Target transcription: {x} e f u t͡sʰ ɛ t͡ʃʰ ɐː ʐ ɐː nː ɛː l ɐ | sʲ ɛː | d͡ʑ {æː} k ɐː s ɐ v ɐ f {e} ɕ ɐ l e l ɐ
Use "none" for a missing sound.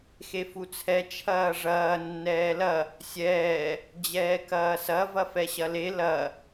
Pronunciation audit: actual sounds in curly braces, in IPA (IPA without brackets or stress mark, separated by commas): x, ɛː, ɛ